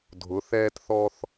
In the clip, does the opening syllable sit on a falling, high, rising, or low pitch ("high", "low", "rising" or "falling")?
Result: rising